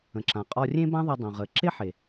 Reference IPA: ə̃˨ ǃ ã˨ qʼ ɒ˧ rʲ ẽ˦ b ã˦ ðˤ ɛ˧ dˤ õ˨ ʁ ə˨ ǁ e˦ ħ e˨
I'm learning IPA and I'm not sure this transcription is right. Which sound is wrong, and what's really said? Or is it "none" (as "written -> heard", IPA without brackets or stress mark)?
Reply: ǃ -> ǁ